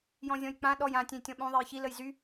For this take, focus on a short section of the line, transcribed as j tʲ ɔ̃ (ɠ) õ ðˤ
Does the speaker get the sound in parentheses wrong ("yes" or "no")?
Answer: yes